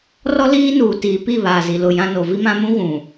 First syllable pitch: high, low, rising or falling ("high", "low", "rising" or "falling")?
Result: high